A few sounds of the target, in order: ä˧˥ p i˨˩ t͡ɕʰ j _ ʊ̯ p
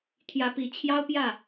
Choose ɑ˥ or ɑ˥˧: ɑ˥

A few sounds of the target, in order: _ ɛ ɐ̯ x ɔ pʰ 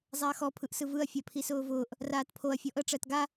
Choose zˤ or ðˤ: zˤ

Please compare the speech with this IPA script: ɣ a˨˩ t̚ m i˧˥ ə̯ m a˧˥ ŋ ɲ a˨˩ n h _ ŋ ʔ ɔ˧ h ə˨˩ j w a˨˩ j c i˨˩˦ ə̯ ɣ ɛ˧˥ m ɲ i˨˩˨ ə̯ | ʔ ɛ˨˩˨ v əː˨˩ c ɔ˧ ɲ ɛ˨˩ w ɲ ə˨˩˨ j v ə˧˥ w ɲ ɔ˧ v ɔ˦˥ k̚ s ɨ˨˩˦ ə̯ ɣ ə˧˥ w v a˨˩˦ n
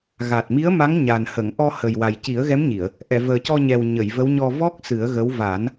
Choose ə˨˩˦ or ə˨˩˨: ə˨˩˨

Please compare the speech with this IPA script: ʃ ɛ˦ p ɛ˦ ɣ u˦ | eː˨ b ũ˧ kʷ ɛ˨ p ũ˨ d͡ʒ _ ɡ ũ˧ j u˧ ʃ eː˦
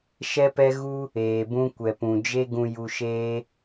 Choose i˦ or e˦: e˦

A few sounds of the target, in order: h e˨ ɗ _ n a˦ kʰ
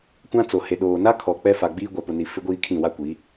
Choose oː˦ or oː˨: oː˨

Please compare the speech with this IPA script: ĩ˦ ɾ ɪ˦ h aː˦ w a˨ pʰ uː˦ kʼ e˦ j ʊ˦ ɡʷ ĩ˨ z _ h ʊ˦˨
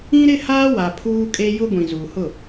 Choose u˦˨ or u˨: u˨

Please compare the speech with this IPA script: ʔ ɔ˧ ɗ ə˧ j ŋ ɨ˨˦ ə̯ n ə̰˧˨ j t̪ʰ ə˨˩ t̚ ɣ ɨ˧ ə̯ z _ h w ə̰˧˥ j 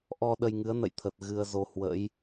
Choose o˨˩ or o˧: o˧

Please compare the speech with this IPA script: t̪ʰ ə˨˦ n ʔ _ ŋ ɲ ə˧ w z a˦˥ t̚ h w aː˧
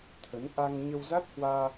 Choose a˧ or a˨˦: a˧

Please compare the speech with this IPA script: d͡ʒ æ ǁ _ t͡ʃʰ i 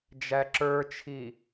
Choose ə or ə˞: ə˞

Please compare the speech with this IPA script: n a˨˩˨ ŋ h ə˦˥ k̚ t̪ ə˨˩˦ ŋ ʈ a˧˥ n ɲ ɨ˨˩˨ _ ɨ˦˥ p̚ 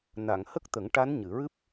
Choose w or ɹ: ɹ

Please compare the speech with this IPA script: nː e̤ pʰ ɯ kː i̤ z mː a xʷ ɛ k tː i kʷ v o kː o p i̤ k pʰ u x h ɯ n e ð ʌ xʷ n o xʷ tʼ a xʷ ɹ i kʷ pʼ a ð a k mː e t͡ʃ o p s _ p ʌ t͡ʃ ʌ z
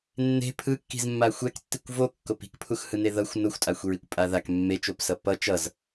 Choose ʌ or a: ʌ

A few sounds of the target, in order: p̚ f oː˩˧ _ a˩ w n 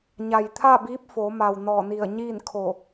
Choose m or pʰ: m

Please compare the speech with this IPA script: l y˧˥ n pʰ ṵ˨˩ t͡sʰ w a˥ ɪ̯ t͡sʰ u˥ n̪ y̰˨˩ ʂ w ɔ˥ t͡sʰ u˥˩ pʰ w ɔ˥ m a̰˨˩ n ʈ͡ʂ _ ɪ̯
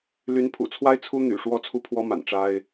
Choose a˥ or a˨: a˥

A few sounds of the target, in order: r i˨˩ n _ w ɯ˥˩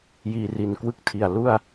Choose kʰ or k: k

